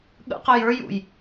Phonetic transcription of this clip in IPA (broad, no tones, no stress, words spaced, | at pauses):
ɠə̰qəj ə˞jṵj